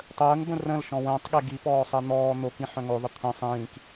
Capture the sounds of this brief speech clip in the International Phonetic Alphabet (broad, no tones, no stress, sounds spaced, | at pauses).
tˤ əː ŋ b ə̃ r ə̃ l ʃ ɔ̃ w ə̃ː tˤ ɠ e ɡ i p ɔː sˤ ɛ n̪ ɔː n̪ o k ĩ ħ œ̃ ŋ o ðˤ ə t̪ʰ ə̃ sˤ ĩː k